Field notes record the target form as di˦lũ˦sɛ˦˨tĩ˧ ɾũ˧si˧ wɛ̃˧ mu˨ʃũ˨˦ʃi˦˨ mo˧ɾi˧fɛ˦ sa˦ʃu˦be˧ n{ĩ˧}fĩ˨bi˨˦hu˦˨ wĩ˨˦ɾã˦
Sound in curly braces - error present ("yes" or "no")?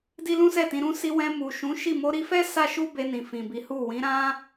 yes